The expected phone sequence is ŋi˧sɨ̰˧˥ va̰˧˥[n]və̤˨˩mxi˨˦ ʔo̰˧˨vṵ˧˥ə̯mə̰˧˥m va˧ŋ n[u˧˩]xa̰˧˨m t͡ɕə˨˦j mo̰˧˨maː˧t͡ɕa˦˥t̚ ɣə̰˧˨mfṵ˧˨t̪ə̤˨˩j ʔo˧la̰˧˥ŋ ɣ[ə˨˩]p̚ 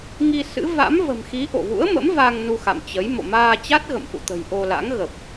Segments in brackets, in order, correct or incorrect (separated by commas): incorrect, incorrect, correct